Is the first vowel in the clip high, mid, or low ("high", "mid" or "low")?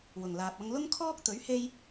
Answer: high